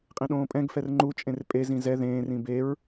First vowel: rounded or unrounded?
unrounded